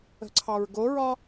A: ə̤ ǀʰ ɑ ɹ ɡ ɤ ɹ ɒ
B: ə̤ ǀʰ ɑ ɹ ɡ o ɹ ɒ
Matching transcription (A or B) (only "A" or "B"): B